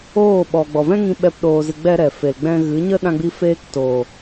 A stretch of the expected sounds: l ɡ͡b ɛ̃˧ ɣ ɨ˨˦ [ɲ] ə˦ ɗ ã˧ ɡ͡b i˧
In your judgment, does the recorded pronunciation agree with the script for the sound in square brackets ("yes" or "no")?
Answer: yes